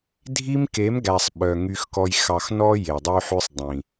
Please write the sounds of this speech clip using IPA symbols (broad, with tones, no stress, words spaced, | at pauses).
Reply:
dʱi˦mke˨˦mɡæ˨sˤ ɓœ˨ ŋy˨xkɔ˨j xɑ˨xnɔ˦ je˨ dˤy˦ħʉ˦sˤdˤĩ˨